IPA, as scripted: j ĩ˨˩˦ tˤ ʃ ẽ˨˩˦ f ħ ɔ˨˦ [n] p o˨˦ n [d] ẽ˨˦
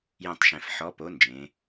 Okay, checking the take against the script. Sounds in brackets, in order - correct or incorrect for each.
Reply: incorrect: none, incorrect: d͡ʒ

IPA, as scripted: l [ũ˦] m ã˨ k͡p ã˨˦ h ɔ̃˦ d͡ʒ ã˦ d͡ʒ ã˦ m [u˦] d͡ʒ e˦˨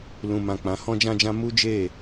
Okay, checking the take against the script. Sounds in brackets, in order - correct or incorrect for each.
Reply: incorrect: ũ˨, correct

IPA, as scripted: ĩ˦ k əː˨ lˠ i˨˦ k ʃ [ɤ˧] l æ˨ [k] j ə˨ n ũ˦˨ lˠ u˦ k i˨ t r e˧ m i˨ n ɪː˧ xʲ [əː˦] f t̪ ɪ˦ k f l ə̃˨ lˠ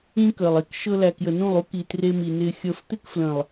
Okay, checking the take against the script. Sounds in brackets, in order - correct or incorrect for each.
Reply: correct, correct, incorrect: əː˧

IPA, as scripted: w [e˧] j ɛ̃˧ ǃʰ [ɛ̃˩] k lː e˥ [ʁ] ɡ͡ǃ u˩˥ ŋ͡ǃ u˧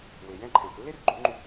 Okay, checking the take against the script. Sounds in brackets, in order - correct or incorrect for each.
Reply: incorrect: e˩, correct, incorrect: r

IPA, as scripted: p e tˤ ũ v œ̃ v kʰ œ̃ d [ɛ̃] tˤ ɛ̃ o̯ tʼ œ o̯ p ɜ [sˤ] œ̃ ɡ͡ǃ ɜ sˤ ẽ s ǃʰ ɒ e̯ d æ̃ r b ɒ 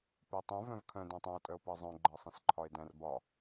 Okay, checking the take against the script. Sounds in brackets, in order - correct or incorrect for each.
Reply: incorrect: æ̃, incorrect: zˤ

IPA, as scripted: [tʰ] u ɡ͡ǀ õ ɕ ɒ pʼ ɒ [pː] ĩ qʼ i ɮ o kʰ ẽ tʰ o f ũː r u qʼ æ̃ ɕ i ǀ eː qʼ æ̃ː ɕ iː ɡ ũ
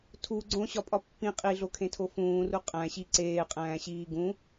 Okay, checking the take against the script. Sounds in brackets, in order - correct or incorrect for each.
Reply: correct, correct

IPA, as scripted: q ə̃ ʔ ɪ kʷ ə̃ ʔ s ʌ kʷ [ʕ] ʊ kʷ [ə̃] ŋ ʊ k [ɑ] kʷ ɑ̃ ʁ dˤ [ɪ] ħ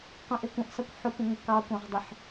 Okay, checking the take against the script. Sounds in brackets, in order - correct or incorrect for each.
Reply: incorrect: ħ, correct, correct, correct

